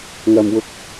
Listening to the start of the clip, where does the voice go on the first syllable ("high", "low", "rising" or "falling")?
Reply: low